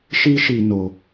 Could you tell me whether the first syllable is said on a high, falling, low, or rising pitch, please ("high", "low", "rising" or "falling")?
high